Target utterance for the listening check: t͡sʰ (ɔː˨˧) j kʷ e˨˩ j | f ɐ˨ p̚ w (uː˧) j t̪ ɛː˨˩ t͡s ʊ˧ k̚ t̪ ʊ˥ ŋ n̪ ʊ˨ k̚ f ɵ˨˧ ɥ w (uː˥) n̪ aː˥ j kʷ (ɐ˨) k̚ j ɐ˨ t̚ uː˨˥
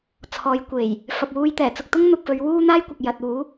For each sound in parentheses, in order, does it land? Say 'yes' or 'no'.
yes, yes, yes, yes

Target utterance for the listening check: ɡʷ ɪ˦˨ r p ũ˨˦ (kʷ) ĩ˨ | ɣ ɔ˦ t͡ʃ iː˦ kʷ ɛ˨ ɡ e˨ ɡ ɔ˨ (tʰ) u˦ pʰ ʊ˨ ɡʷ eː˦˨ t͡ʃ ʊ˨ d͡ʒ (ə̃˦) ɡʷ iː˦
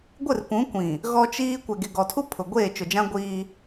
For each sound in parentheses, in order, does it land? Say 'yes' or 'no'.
yes, yes, no

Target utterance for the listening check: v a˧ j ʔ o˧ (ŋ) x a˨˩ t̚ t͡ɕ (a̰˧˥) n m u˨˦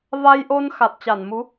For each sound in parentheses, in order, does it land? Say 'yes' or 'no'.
no, no

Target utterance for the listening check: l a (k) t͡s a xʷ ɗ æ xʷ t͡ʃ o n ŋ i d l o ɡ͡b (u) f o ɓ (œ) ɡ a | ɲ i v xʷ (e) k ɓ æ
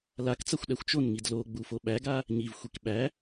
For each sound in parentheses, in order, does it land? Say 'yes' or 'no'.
yes, yes, no, no

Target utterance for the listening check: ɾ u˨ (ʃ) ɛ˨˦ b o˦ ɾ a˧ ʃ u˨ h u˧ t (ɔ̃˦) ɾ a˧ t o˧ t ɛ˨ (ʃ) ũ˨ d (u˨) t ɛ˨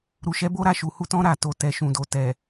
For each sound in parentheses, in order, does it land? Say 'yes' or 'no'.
yes, yes, yes, no

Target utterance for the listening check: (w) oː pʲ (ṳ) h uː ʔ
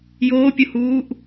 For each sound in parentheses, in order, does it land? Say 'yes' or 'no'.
no, no

